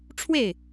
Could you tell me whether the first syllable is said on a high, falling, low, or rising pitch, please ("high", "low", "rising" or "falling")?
falling